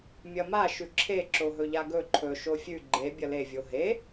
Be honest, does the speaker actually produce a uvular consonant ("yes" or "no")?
no